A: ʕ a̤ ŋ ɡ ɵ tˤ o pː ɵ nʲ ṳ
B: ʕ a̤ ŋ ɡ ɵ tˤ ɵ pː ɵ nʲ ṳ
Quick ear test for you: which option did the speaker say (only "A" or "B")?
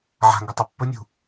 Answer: A